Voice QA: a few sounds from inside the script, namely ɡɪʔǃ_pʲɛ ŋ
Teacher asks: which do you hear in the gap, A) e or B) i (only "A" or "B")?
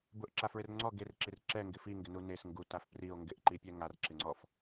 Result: B